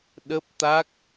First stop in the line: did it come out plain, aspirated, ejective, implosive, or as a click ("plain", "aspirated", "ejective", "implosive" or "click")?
implosive